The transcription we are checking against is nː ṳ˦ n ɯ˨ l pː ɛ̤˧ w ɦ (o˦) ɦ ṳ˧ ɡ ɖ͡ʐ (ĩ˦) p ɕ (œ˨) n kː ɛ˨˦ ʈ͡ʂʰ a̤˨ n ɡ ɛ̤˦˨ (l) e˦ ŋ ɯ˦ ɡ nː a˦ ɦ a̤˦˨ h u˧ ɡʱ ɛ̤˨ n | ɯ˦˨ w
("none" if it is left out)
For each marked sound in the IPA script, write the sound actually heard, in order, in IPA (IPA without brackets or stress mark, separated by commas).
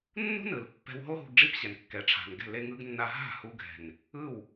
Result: o˦, i˦, ɛ˨, l